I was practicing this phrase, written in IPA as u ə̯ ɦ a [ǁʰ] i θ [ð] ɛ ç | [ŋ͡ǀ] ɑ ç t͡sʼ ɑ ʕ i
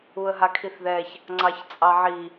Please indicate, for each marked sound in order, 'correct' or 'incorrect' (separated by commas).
incorrect, correct, correct